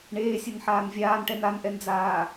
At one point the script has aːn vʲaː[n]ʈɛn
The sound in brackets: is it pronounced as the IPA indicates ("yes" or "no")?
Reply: yes